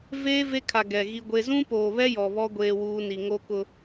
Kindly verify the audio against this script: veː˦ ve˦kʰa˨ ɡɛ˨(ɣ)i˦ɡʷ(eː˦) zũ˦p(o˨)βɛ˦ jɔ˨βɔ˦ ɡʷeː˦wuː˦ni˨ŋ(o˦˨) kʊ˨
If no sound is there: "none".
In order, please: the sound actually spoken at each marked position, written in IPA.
ɣ, e˦, oː˨, o˦

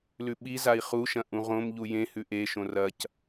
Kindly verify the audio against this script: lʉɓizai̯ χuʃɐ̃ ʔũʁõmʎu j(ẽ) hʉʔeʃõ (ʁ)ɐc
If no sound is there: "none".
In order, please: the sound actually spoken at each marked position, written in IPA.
ẽ, r

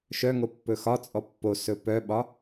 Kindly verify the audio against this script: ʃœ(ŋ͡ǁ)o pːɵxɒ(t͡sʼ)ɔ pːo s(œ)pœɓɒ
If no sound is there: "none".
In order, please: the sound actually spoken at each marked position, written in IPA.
ŋ, t͡sʼ, ɵ

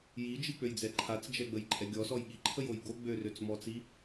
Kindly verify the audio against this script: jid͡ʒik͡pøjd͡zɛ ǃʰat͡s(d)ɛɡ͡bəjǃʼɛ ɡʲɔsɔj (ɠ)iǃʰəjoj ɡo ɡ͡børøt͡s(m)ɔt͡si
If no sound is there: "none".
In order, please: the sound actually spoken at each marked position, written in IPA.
d͡ʒ, ɠ, m

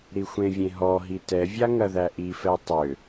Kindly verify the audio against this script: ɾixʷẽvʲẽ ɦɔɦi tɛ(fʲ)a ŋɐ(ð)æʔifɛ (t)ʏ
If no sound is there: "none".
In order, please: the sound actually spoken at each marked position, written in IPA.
vʲ, ð, tˤ

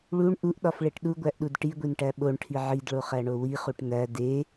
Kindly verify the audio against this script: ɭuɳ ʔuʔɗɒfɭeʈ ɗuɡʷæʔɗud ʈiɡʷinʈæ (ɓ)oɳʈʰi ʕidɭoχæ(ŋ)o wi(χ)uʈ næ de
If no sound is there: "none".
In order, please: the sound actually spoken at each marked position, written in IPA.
ɓ, ɳ, χ

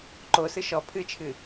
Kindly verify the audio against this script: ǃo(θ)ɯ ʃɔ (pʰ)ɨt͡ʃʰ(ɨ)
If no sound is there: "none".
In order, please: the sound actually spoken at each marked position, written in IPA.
s, pʰ, ɨ

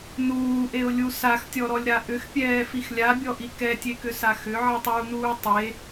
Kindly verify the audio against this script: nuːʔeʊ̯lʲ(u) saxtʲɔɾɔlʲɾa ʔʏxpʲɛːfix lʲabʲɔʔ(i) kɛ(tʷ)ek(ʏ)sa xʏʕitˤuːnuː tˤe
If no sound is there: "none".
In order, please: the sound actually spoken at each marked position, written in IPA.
u, i, tʲ, ʏ

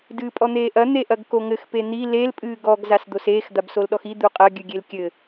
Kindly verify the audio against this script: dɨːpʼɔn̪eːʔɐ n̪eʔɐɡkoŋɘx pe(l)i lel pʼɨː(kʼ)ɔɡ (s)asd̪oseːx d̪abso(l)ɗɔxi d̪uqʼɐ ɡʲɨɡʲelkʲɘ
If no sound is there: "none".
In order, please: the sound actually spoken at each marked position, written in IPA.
n̪, ɡ, z, l

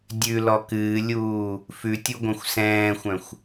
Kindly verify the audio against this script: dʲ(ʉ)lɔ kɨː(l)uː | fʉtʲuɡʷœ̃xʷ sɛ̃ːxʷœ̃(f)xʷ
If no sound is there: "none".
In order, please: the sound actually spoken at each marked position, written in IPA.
ʉ, lʲ, none

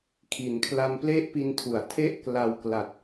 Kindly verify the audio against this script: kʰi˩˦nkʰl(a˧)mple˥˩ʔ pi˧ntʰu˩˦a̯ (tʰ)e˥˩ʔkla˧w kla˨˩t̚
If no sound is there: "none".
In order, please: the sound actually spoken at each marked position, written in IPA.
a˧, tʰ

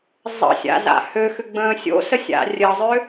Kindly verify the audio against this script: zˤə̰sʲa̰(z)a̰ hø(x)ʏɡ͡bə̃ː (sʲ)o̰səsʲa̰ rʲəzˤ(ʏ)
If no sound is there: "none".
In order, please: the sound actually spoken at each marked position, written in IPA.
z, x, sʲ, ʏ

